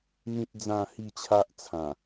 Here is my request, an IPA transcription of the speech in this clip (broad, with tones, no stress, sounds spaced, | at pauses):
n̪ ĩ˦ t̚ d͡z ã˥˧ h i˥˧ t͡ɕʰ a˦ ʔ t͡sʰ ã˨˩